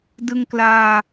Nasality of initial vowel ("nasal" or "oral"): oral